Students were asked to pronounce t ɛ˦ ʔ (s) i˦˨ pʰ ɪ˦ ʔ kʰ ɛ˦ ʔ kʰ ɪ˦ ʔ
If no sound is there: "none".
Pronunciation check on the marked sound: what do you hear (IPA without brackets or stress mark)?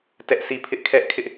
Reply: s